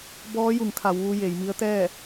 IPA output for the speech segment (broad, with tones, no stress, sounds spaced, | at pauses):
b ɔː˧˥ j u˩˧ ŋ kʰ a˩˧ w ʋ u˧ j e˩˧ j m i˧˥ ə̯ t̪ ɛː˥˨